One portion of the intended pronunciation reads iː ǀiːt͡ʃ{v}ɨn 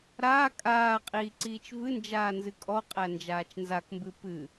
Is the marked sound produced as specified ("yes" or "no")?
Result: yes